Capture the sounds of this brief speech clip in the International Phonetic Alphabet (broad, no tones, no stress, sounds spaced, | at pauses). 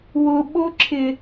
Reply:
w ʊ ɓ o ǁʰ ɪ